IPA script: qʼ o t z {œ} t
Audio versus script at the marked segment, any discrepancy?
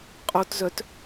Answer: no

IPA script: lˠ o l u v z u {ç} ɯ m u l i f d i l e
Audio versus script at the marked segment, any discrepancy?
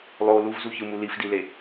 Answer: no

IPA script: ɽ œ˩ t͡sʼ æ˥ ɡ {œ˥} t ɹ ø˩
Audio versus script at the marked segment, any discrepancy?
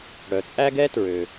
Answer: yes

